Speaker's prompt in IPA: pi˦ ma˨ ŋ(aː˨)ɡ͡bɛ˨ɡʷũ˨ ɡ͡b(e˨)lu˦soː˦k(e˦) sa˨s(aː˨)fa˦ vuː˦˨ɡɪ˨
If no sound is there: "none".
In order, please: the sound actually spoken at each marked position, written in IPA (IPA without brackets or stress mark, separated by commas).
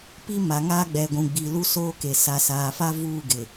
aː˦, i˨, e˨, aː˨